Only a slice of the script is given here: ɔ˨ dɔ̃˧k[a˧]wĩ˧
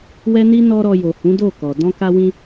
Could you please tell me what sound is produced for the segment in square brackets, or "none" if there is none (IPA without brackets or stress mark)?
a˧